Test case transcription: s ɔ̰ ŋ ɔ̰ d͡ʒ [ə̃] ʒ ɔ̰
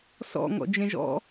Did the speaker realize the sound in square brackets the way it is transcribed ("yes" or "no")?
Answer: no